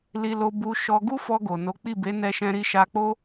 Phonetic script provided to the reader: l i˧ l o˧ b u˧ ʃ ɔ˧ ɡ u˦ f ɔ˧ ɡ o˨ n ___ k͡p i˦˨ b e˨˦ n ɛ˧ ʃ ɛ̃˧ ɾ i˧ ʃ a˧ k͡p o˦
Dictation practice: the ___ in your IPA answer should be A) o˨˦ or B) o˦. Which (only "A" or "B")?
A